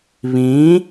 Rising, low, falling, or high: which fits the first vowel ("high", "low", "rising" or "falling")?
rising